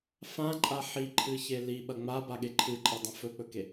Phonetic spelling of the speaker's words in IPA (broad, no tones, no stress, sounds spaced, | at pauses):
f ã ǃʼ a ħ i ǃʰ ɨ ç e l i ɓ ɐ ŋ͡m a b a ɠ e ǃʰ ɨ ǃʼ e dˤ ɐ̃ f ɵ k͡p ɵ k e